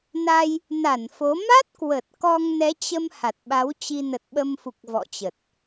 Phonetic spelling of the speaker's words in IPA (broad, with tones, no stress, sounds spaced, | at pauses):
n a˧ j | n a˧˩ n f o˨˦ m a˦˥ t̚ k w ə˨˩ t̚ k ɔ˧ ŋ n ɛ˨˦ t͡ɕ ə˧ m h a˨˩ t̚ ɓ a˨˦ w t͡ɕ i˧ n ə˨˩ t̚ ɓ ə˧ m f u˨˩ k̚ v ɔ̰˧˨ t͡ɕ ə˨˩ t̚